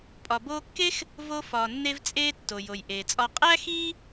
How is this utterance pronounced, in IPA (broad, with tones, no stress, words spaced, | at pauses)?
pʼɒ˩boː˧ kːe˥x | vo˧fɒː˩nːe˧vt͡sʼeː˧ tːo˩jo˩jʔeː˩t͡sʼɒ˧ qʼæː˥xiː˥